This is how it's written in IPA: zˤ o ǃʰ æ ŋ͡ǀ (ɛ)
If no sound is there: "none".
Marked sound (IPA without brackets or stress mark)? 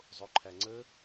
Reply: ə